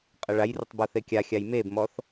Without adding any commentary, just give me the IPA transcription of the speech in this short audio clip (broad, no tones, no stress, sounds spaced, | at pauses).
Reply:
qʼ ə ɭ a j r ə tˤ b ɔ θ e kʲ a xʲ a j m e b m ɔ θ